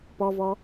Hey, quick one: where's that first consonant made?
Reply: lips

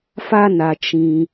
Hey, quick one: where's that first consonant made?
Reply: lips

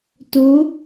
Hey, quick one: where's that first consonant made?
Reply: tongue tip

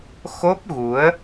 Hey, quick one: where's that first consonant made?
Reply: velum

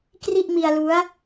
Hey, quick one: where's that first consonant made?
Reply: velum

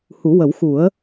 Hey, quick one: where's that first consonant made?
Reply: throat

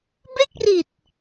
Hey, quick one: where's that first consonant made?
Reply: lips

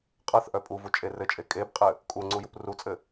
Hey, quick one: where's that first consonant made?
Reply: uvula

